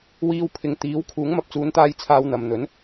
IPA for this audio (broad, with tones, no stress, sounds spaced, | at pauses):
w iː˧ w pʰ ɪ˨˧ ŋ t̪ iː˨˥ w kʰ uː˨˥ ŋ m ɐ˧ p̚ t͡s uː˨˧ n t̪ aː˧ j t͡sʰ aː˧ w n̪ ɐ˨ m n̪ ɵ˨˥ n